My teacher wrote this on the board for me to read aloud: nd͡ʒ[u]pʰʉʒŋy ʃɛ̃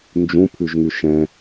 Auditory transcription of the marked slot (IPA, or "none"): ũ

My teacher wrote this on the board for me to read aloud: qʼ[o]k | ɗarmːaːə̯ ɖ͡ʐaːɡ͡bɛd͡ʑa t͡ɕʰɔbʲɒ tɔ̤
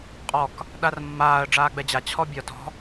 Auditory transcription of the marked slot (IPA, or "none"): ɔ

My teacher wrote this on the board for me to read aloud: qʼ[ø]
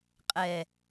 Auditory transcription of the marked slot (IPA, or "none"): ɛ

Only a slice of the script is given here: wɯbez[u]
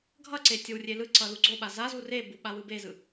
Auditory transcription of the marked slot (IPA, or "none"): ɯ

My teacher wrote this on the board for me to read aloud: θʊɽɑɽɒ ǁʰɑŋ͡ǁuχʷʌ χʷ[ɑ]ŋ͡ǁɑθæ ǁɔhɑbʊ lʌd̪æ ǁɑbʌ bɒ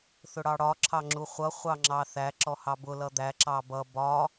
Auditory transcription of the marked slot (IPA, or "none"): ɑ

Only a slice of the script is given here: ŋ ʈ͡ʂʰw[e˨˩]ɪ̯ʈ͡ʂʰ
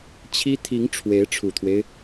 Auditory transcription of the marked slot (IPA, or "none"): e˧˥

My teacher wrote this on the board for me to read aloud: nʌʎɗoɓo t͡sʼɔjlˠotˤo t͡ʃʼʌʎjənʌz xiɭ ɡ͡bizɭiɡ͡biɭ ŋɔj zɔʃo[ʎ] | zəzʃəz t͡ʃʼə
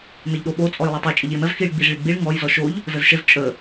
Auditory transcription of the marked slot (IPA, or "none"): ʎ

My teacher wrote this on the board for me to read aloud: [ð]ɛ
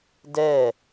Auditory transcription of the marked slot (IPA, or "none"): d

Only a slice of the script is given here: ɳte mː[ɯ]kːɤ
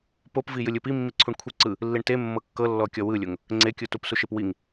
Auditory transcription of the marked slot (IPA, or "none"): ɤ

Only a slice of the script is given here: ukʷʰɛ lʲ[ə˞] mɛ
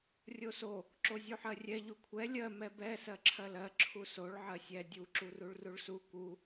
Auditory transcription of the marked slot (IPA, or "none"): ɜ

